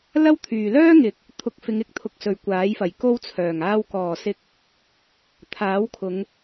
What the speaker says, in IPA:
lɐ˥wt̪ʰyː˨ lœː˥ŋɪ˨k̚ | t̪ʰʊ˨˥k̚fɪ˨˧ŋ ɪ˧k̚ t̪ʰʊ˧k̚sɵ˨ɥkʷaː˨˥jfɐ˨˩j ko˥wt͡sʰœː˨˩ŋ aː˧wkɔː˨˩sɪ˧k̚ | t̪ʰaː˨˥wkʰʊ˨˧ŋ

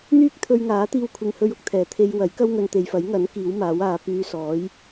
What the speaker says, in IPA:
n̪yː˥k̚t̪ʰɵ˧ɥŋaː˨˥t̪iː˧w kʷʰɪ˨ŋhɵ˧ɥʊ˨k̚t̪ʰɛː˨˩ t̪ʰe˧jwɐ˨˥j kɐ˥wŋɵ˨n t̪e˨jfɐ˨˥jŋɐ˨˥n kiː˨˥wmaː˨˥waː˨˧ pyː˧ sɔː˨˥j

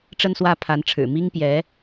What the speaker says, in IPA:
ʈ͡ʂə˥˧nswä˥˩pʰa˧˥nʈ͡ʂʰɻ̩˨˩ mi˥ŋpjɛ˧˥

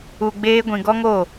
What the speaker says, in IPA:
u˨ɡ͡beː˧ɡʷĩ˨ ɡɔ˦ŋo˦˨

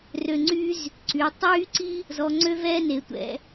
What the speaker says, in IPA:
rø˧˩ŋ͡ǀy˥z | ǀy˩˧ tˤyː˥ ǀi˥ | zɔ˧ ŋ͡ǀø˥vɛː˥ne˩˧ tʷɛ̰˧

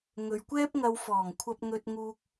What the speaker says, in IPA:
ŋɵ˨ɥkʷɛː˥p̚ŋɐ˧w fɔː˨˩ŋkʷʰɐ˧p̚ŋɵ˧t̚ ŋuː˧k̚

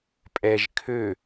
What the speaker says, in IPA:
pʼɛʒ kʰø

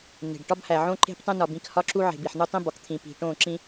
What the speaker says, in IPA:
ne̤˨ɖ ʈɒ˦bhæ˨ʕõ˦ ǃe̤˦p tˤẽ˦nɒ˨bĩ˦˨khɒ˦ ǁu˦ ʕe̤˨ bi˨ħn̪u˦tˤĩ˦bɒ˨k t̪ʰĩ˨pi̤˨ ʈõ˦˨ ǁĩ˦

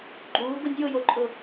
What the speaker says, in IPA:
ɡ͡ǃuː ɡʊnʲjʊjoǃʼʊ

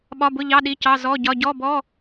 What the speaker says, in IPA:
ɓɒ˧˥˧bʊ˧˥˧ʎɑ˧˥˧ ɗi˧˥˧cɑ˧˥˧ zɔ˧˥˧ ɟɒ˧˥˧ ɟɔ˧˥˧ bɔ˧˥˧

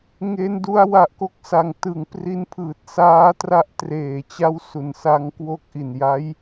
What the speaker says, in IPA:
ŋe˦˥ndu˦˥a̯ wa˨˩ʔko˥˩k̚sa˨˩ŋ tɯ˨˩ŋpri˦˥npʰɯː˨˩t̚ saː˦˥tra˦˥ʔ treː˨˩t͡ɕa˥˩wsu˨˩n sa˦˥ŋkwo˥˩k̚ ʔi˨˩nja˦˥j

